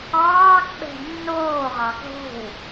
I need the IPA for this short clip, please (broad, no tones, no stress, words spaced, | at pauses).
ɑːkɓɛ̤ nːoːʁɑ ɡʱo̤w